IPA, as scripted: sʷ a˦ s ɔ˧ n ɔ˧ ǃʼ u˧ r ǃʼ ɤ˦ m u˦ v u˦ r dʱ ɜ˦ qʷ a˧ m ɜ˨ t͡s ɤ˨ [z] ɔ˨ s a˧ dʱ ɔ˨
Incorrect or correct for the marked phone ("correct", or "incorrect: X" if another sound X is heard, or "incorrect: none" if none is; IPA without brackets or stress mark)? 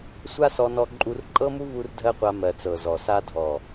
correct